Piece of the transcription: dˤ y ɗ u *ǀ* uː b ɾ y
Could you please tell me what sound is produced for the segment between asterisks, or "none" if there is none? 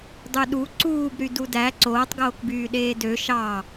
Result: ǀ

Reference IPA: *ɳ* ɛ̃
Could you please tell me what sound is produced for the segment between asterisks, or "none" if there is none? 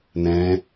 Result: n̪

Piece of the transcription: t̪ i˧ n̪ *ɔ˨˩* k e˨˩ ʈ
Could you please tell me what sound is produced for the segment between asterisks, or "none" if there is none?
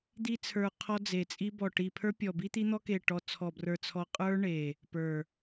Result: ɔ˧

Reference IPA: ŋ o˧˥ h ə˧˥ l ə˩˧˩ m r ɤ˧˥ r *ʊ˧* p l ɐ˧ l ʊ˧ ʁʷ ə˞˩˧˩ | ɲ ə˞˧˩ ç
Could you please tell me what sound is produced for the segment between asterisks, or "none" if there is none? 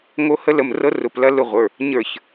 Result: ʊ˩˧˩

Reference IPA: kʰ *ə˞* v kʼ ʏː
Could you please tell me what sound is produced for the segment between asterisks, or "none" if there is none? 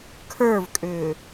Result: ə˞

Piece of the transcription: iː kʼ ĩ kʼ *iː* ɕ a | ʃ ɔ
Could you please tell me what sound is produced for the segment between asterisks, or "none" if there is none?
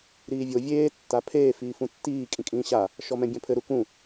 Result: ĩː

